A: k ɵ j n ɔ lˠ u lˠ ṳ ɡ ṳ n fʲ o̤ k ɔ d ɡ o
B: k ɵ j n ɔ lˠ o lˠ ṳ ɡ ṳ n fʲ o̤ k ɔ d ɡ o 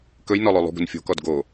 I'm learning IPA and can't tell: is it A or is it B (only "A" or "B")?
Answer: B